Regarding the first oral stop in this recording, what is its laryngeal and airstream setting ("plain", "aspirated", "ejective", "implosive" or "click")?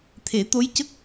aspirated